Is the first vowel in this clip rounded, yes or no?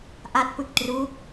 no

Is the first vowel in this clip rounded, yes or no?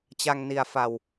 no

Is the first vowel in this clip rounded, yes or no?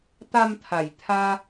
no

